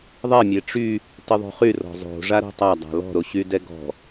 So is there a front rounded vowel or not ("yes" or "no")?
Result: yes